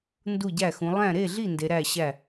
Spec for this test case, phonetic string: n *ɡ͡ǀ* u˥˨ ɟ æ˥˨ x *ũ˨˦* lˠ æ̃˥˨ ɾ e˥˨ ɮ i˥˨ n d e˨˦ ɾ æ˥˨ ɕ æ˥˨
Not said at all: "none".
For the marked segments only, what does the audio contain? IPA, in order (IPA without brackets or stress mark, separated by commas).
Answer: d, ũ˨˦